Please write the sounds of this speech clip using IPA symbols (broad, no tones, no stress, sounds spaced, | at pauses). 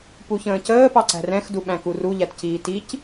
p u ç ə̃ː c əː p ɑ ǀ æ̤ r ɛ̃ x d u ɓ æ̃ k u r u ʎ æ t c iː t i c